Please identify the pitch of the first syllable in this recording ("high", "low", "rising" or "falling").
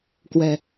low